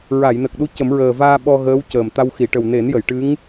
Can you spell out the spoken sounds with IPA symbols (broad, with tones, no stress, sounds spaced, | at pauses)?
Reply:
ɹ a˨˩˨ j n ə˨˩ k̚ ɗ u˧˥ c ə˨˩˦ m ɹ əː˨˩ v aː˧ ɓ ɔ˧ ɣ əː˧˥ w c əː˨˩ m t̪ a˧ w x i˨˩˨ ʈ ə˨˩ w n e˨˩˦ n j ə˨˩˨ j ʈ ɨ˧˥ ŋ